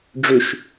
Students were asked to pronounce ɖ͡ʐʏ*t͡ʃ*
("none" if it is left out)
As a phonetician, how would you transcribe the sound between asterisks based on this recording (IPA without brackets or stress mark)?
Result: ʃ